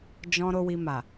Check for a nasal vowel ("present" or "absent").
present